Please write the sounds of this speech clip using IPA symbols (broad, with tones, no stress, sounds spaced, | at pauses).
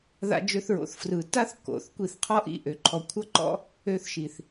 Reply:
ð a̰˧ d͡ʒ ø˧ θ ɹ o̰˨ θ f r ɯ˨ t a˦ θ k o̰˨ θ kʷ i˧ θ qʰ ɔ˦ ʔ ḭ˦˨ ʔ ø˨ ǃʰ ɔ˨ kʷʰ ʌ˧ ǃ ɔ̰˧ | ø˧ θ ʃ i˨ θ